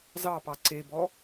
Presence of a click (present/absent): present